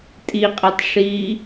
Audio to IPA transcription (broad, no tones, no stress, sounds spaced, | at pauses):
tʼ i qʼ ɛ tˤ ʂ iː